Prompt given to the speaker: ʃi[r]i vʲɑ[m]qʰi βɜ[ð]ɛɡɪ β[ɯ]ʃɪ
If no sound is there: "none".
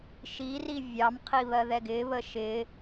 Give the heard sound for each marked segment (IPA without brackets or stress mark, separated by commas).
r, m, ð, ə